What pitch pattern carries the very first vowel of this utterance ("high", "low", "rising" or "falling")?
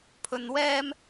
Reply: low